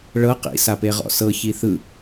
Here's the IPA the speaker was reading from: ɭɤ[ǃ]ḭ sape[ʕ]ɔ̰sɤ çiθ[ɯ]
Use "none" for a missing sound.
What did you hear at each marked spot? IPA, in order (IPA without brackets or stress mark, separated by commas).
q, ʁ, ɯ